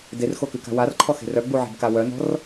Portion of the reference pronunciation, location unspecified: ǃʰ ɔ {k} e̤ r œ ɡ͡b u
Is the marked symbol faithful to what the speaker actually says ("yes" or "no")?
no